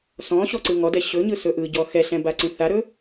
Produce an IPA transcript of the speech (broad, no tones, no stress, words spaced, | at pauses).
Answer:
sɔ̃ ɕɔǀɯŋɔdɛ ɕɵɲɯ sɵʔɯɟɔ xɛɬɛ̃ baǀĩθaɾɵ